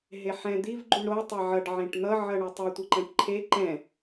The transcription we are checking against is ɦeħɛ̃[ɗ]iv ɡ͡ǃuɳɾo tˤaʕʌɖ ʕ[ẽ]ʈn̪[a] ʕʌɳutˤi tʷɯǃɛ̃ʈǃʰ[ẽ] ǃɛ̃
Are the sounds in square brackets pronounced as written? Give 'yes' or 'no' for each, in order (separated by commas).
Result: no, yes, no, no